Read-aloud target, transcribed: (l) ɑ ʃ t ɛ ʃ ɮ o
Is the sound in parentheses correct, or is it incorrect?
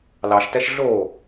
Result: correct